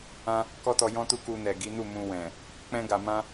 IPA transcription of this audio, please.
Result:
ã˦ | k ɔ˦ t ɔ˧ j ɔ̃˦ t u˦ k u˧ n ɛ˨ ɡ i˨˦ n u˦˨ m ũ˧ w ɛ̃˨ | k͡p ɛ̃˦ ɡ a˧ m ã˦

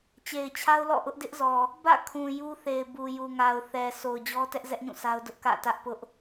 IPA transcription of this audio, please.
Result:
t͡ɕ e˨ ɪ̯ t͡ɕʰ a˦ ʊ̯ l ɔ̰˦˨ ʔ ʊ˦ ʔ d ɪ˦ ʔ z ɔ˨ | b ä̰˦˨ kʰ ũ˨ j u˦ θ e˨ ɪ̯ b u˨ j u˨ ŋ a˨ ʊ̯ θ ɛ˨ s o˨ ʊ̯ d͡ʑ ɔ˦ t ɛ˦ ʔ z ɛ˦ ʔ ɲ ũ˦˨ sʰ a˦ ʊ̯ d ʊ˦ ʔ k ä̰˦˨ t ä˦ ʔ p ʊ˦ ʔ

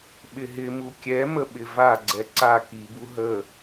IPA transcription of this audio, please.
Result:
ɓ ɪ ɦ ɪ m u kʲ ɛ m ə ɓ ɪ v a ɡ͡ǀ ɛ ǀ a k i b u ɦ ə

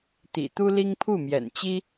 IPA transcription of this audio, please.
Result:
t̪ ḭ˨˩ t̪ u˦ l i˦ ŋ pʰ u˥˨ m j ɛ̰˨˩ n t͡ɕ i˦

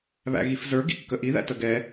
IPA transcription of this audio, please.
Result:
β æ̰ ɣ i f z ə˞ ɡ ḭ kː ə ʔ i ð æ̰ t ə ɡ ɛ

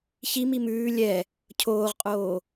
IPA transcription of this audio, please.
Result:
ç i m i m ʉː lʲ ɛ | cʰ oː ʁ qʼ oː

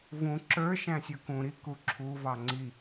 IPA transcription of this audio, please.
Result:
v ũ ǁ ə˞ ʃ æ̃ sʲ ɔ k ũ ɾ i k u ǁʰ u v ɑ ŋ͡ǀ i

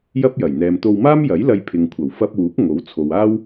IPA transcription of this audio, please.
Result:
j ɐ˥ p̚ j ɐ˨˩ j n̪ ɛː˨ m t̪ o˧ w m aː˥ m j ɐ˨˥ j l ɐ˧ j pʰ ɪ˨ ŋ kʷʰ ɐ˨˩ w f ɐ˧ p̚ w uː˨˥ k̚ ŋ o˨˥ w t͡sʰ o˨ w aː˥ w

